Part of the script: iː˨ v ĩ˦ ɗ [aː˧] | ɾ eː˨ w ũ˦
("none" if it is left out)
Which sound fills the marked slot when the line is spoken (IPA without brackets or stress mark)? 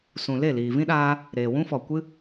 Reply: aː˧